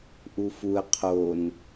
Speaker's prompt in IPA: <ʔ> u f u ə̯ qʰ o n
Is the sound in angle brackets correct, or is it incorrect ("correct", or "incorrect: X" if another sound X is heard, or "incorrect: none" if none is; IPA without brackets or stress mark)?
correct